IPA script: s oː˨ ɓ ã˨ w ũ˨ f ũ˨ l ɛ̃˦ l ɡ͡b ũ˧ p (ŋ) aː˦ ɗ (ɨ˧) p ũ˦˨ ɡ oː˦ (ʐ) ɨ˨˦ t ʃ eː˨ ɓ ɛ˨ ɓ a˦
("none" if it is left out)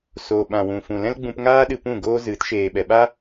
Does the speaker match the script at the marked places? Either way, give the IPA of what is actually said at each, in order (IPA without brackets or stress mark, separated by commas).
ŋ, ɨ˧, z